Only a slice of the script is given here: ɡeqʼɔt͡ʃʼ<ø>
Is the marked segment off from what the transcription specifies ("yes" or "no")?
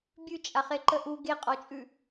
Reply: yes